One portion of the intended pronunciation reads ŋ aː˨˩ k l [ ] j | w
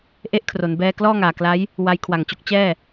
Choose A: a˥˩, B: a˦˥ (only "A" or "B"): B